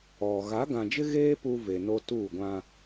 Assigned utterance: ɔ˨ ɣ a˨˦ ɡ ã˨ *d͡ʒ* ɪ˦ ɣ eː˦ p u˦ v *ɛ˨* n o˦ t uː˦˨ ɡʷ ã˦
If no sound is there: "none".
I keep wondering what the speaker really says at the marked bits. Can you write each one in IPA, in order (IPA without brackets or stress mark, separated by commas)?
d͡ʒ, e˨